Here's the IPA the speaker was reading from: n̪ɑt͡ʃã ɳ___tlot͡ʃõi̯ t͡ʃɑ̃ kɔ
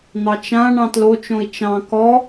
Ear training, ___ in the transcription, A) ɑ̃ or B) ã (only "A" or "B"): A